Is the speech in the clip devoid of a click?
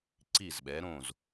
no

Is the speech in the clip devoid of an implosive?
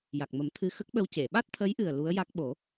no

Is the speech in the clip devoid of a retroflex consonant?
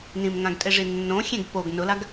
no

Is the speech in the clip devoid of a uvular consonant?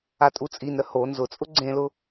yes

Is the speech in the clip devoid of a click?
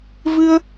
yes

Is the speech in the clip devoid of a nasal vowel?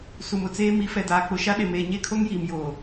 yes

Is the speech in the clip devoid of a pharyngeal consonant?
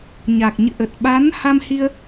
yes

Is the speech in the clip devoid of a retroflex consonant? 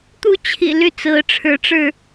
no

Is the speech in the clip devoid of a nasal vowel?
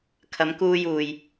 yes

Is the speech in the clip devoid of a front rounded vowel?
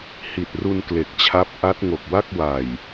yes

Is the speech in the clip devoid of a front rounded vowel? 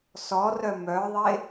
no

